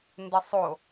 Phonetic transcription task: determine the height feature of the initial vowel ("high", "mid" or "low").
mid